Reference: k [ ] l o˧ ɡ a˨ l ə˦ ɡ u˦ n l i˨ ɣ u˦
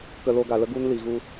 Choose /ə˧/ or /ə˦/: ə˧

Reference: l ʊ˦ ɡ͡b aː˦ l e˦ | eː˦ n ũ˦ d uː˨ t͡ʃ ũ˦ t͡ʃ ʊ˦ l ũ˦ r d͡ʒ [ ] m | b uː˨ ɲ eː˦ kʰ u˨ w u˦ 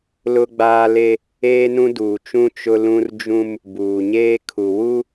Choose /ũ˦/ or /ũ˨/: ũ˦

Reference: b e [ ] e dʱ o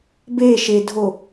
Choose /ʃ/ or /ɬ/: ʃ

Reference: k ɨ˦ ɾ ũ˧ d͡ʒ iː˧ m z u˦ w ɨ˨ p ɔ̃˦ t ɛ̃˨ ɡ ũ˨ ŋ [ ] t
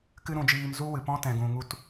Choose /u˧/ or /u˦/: u˧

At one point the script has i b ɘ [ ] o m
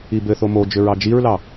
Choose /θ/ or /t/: θ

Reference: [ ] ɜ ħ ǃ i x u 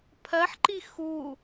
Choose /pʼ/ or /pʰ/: pʰ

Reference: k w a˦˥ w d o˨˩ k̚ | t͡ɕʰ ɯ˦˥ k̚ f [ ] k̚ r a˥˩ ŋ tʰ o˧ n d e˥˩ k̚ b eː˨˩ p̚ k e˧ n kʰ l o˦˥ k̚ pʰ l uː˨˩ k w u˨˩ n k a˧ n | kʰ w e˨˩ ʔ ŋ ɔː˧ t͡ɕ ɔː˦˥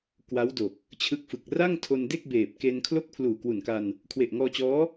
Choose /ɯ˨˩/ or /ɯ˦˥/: ɯ˨˩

